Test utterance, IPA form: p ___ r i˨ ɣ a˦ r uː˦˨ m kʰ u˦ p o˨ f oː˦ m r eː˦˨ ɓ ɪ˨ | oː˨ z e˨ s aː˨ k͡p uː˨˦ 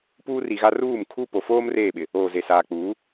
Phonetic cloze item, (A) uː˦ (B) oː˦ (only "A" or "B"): A